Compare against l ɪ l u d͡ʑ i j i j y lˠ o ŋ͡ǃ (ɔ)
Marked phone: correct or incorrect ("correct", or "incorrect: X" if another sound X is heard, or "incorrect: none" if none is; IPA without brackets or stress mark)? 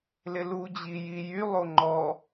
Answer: correct